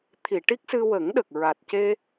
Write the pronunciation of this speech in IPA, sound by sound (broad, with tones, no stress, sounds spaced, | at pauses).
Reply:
t̪ʰ i˨˩˨ ʈ i˦˥ k̚ s ɨ˧ w ə˨˩˦ ŋ ɗ ə˨˩ k̚ ɹ a˨˩ t̚ c e˧